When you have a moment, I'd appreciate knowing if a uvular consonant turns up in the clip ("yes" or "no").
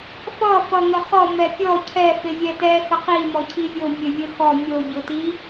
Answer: yes